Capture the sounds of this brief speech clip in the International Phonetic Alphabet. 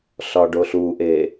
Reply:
ɬ ɒ ɖ o ɬ u ʔ e

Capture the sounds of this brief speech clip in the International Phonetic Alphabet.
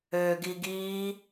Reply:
ø ɡ i ɡ iː

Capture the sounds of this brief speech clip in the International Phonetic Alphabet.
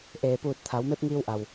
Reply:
ʔ eː˩ p uː˧˩ t̚ t̪ʰ a˩˧ w m e˧˥ p̚ ŋ iː˧ w ʔ a˩ w

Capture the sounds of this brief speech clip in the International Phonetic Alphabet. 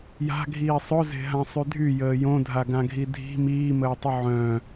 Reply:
j a̤ ɡʱ iː sˤ ʊ z e̤ ɦ ã sˤ y dʱ y j əː j õ dʱ a ɡ ã ɡʱ i dʱ i̤ m iː m əː tˤ ʊ ʕ œ̃

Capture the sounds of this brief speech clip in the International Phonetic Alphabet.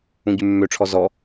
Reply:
ũ ɟ ʉ mː ø ʈ͡ʂʰ ɔ z ɔ

